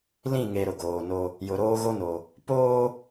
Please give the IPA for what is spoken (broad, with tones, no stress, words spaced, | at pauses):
lĩ˦˨ŋe˨ ɾʊ˨ɡoː˨no˦ | jʊ˨ɾoː˦ɣo˦no˨ | poː˦